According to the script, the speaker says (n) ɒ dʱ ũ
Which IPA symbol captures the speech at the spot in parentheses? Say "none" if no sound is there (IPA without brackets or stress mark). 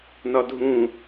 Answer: n